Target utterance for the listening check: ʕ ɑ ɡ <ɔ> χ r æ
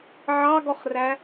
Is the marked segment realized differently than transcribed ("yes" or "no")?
no